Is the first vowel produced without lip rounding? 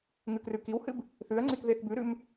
no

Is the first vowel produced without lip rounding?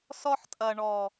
no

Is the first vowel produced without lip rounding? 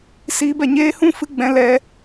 yes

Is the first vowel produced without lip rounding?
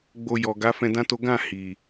no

